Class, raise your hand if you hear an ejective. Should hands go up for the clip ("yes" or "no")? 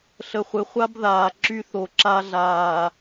no